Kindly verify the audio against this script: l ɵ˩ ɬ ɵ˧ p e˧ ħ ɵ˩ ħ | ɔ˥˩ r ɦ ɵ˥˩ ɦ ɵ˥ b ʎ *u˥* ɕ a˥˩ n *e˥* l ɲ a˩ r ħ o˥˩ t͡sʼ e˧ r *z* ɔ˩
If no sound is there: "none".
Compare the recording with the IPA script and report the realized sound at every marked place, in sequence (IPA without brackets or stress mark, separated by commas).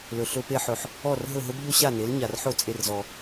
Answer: o˥, e˩˥, z